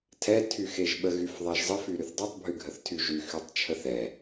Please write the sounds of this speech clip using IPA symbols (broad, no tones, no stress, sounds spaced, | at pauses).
tʰ ɛ tʰ y x e ʒ ɓ ə ɣ y f ðˤ ɛ ʒ zˤ ə f y ɾ y θ dˤ y tˤ bʱ y ɡʱ ə θ tʰ y ʒ y x y tˤ t͡ʃʰ ə θ ɛ